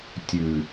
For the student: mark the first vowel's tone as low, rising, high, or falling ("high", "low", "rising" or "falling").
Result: low